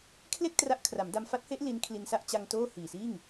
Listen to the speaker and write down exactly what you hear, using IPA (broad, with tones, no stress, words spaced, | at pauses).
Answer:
kʰle˥˩k̚ tra˦˥ʔkʰra˩˦mda˧m fa˦˥t̚he˦˥ʔ li˦˥nkʰli˧n sa˥˩ʔt͡ɕa˧ŋ toː˥˩hiː˨˩siː˥˩ŋ